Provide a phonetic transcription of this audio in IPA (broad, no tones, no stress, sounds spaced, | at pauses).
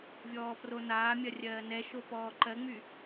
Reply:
vʲ ɔː p r o n aː mʲ ɐ rʲ ɜː n ɛ ʃ o p ɔː ǃ ɜ ŋ͡m y